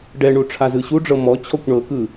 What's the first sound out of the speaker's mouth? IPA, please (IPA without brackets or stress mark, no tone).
ɖ